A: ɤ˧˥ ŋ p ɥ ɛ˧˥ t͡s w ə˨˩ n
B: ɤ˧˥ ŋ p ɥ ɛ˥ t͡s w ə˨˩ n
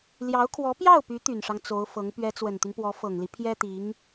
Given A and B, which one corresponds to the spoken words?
A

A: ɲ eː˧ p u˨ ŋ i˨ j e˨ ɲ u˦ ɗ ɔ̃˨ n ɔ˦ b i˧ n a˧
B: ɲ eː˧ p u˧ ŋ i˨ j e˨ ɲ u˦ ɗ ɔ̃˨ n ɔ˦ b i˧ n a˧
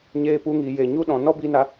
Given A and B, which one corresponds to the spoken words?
B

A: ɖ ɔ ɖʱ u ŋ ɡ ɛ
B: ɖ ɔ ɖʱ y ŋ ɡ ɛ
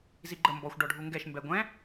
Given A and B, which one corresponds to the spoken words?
A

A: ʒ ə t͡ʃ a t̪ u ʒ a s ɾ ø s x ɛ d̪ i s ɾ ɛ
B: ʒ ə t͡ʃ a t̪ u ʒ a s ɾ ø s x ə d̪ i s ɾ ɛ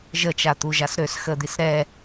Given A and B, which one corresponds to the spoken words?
B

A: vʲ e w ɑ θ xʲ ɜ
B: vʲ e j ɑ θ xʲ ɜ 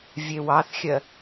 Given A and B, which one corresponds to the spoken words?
A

